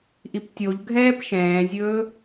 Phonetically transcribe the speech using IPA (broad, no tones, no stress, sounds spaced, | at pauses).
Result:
ʔ i p tʲ o ʎ ɡʱ ɛː p ʃ ɛ̃ː zʲ ɵː